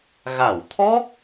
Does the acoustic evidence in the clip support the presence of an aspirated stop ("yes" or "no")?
yes